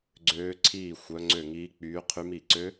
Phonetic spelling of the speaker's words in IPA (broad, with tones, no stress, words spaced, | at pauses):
ɡ͡ǀøː˦˥ǀʰiː˥˧ xʷœ˦˥ŋ͡ǀø˥˧ŋiː˦˥k͡pyː˦˥ qʰy˦˥mi˥˧ ǀø˦˥